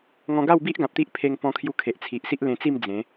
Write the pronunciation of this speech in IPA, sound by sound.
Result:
ŋ ɔ̃˧ ɡ a˥˧ w b i˦ ʔ ɡ ã˨ p̚ t̪ i˦ ʔ pʰ e˧ ŋ p ɔ̃˧ kʰ j u˧ kʰ e˨ ʔ t͡sʰ i˨ ʔ s i˦ ʔ l ẽ˧ t͡s i˥˧ m d͡z ẽ˨˦

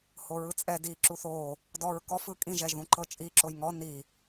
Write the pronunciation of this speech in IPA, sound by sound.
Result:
h o ɹ ɯ t͡sʼ ɛ d i ǁ u θ o | d ɔ ɹ k ɔ f ɯ kʼ ĩ ʒ ɛ ʒ ð ũ ǃ ɤ t͡ʃʼ i ǁ o j ŋ ɔ n i

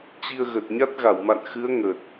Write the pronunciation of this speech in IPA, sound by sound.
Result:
t͡ɕ i˧ ə̯ ɣ ə˨˩ t̚ ɲ a˦˥ t̚ ɣ a˧˩ w m a̰˧˨ n x ɨ˨˦ ə̯ ŋ ə˨˩ t̚

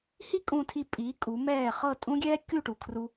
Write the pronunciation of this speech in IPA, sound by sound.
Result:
h i˥ kʼ ũ˧ tʰ i˧ pʼ iː˩˥ kʼ u˩˥ m ɛː˥˩ χ ɤ˥˩ tʼ ũ˥ ɡʲ ɛː˥ kʲ u˥˩ ʈ u˩ kʰ r u˧

